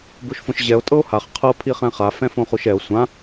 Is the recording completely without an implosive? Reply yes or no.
yes